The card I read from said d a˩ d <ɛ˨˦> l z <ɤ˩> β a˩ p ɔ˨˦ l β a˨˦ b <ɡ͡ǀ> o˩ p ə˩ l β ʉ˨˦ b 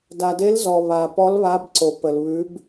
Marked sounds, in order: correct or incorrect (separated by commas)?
incorrect, incorrect, incorrect